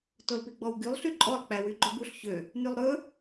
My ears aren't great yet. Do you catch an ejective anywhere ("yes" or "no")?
yes